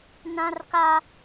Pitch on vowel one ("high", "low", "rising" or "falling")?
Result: high